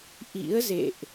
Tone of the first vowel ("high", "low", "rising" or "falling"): rising